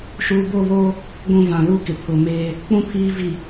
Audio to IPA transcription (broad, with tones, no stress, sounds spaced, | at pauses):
ʃ uː˨ b o˦˨ β o˦ | ɡʷ ũ˦˨ v ã˨ l u˦ k ɪ˨ pʰ ʊ˨ m e˦ | k͡p ũ˦ pʰ iː˦ v i˨